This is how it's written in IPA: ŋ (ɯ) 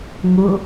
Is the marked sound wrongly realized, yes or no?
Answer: yes